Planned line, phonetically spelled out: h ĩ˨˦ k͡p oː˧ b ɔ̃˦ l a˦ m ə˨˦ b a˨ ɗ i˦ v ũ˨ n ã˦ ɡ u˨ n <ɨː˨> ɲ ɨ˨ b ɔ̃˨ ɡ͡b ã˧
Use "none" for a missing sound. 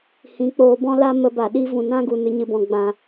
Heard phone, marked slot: ɨ˨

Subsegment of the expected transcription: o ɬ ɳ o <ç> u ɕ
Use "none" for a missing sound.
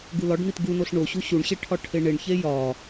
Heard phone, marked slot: ɕ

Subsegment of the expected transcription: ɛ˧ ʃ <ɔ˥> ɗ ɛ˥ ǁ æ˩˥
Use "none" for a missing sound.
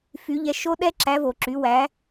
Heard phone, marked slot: o˥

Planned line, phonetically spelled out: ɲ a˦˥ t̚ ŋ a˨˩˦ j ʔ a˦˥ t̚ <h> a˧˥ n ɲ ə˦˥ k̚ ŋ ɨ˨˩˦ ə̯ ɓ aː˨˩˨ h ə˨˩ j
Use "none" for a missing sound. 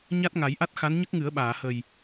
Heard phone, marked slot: x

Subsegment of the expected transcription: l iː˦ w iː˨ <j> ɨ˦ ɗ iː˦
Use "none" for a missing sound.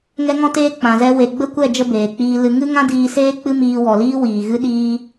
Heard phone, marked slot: ɣ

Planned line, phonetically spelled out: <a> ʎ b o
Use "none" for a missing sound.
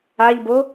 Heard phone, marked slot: a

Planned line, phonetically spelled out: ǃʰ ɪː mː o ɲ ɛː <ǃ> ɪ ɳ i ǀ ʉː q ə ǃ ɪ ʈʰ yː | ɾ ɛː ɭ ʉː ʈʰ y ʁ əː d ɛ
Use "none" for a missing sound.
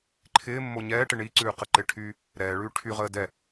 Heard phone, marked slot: ʈ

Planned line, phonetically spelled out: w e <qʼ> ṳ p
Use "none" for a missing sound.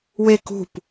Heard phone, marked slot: k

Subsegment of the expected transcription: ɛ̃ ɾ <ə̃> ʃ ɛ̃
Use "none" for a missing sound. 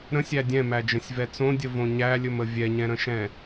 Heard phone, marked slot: ə̃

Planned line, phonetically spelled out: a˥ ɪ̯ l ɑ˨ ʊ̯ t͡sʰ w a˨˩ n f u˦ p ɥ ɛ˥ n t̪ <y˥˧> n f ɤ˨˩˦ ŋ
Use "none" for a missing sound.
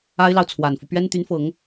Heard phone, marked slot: y˧˥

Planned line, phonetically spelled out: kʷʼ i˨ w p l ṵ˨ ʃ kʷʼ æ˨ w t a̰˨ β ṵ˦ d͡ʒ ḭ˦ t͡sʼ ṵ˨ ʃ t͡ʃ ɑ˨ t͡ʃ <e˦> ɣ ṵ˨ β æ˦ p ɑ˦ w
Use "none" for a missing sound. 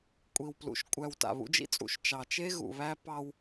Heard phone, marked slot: e˦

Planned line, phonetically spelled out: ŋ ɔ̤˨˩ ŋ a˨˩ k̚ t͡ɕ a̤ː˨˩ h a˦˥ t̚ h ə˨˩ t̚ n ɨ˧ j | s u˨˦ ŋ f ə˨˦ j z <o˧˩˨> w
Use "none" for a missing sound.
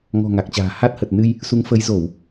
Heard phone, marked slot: o˧˩˨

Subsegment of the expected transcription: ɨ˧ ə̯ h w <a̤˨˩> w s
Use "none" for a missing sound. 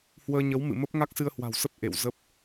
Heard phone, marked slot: a̤˨˩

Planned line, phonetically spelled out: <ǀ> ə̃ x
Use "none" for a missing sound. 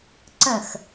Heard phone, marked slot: ǀ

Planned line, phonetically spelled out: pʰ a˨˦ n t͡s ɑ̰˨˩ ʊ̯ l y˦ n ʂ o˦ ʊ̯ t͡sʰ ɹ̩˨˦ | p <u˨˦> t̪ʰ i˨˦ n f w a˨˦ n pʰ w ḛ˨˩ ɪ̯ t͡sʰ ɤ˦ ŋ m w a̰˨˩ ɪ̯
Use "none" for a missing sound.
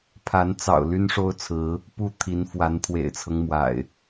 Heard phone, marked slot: u˥˨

